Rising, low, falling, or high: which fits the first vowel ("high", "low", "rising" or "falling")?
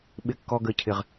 high